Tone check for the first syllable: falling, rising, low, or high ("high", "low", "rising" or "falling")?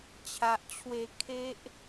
low